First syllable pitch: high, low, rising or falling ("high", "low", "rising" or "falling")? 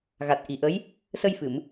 low